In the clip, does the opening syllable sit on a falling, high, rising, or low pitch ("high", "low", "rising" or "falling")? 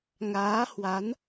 rising